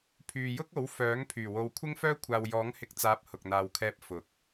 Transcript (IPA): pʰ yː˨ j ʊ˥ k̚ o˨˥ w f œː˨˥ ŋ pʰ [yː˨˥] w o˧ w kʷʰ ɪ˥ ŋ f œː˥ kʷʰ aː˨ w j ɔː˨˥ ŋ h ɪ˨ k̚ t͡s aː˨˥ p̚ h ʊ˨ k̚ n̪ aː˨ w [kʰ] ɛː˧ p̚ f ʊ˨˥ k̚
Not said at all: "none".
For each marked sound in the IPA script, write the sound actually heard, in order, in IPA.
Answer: yː˨˩, kʰ

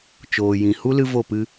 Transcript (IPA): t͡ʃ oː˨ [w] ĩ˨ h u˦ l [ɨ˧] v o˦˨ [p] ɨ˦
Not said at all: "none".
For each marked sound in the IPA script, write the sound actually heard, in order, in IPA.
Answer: j, ɨ˧, p

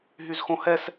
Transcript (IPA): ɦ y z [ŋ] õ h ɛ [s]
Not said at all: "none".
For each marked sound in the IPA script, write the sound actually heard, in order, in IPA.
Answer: x, s

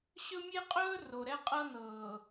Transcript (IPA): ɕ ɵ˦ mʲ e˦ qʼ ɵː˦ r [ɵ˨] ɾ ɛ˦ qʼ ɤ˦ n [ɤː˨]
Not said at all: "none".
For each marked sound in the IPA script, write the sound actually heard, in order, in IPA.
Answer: o˨, ɤː˨

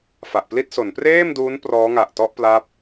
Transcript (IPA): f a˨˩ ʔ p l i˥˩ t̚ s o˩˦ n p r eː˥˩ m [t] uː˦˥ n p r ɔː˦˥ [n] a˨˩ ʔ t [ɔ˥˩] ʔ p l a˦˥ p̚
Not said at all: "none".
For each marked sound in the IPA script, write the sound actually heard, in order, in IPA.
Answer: d, ŋ, ɔ˥˩

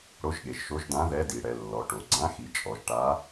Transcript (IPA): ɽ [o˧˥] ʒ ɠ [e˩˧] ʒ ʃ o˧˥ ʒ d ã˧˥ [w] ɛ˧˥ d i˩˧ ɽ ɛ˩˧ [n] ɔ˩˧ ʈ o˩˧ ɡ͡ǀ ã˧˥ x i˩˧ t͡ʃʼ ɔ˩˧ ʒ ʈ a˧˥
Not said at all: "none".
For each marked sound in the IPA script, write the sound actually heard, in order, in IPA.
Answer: o˧˥, e˩˧, ð, lː

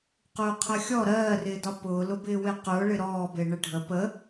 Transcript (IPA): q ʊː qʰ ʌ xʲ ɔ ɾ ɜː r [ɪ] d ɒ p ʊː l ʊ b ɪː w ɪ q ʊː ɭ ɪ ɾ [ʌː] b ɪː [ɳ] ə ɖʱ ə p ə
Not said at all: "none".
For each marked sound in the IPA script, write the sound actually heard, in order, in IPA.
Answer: ɪː, ɔː, ɳ

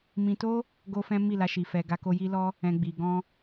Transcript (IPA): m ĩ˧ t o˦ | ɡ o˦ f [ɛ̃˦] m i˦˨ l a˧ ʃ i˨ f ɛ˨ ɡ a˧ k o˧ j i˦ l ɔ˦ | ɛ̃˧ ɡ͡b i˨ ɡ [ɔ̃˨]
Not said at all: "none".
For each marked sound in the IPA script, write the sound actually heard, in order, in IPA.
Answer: ɛ̃˦, ɔ̃˧

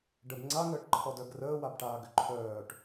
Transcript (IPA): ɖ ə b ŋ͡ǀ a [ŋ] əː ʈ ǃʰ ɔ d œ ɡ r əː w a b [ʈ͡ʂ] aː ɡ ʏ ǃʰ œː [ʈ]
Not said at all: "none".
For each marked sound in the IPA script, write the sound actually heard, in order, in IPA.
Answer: ŋ, ʈ, ʈ

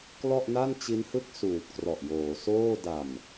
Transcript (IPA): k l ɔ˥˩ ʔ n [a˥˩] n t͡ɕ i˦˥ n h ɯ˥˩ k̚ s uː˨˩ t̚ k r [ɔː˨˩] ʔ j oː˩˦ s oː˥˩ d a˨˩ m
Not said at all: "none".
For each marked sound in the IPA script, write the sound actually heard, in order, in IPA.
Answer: a˥˩, ɔ˨˩

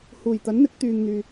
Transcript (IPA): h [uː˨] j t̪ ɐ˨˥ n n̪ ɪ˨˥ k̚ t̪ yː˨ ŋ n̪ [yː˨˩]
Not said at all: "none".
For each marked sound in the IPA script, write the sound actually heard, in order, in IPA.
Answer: uː˨˩, yː˨

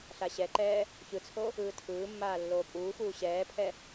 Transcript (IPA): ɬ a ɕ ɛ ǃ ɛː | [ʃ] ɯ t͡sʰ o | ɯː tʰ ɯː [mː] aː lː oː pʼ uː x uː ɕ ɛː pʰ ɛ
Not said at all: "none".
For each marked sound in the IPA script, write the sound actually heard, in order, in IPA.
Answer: ç, mː

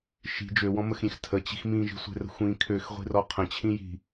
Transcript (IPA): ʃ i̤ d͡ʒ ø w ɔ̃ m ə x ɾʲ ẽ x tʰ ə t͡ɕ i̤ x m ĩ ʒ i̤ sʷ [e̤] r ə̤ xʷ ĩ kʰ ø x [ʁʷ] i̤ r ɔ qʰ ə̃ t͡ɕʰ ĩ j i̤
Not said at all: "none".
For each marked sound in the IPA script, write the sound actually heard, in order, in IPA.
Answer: e̤, ʁʷ

